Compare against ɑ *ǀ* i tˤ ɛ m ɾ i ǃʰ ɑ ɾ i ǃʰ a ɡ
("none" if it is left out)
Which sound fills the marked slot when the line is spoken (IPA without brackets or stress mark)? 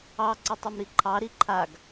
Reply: ǀ